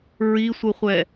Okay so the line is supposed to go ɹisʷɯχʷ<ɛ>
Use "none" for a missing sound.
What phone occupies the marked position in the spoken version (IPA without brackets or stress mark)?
ɛ